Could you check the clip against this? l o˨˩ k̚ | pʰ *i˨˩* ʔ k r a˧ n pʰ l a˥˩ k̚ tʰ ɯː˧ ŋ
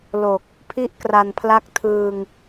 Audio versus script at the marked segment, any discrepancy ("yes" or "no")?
yes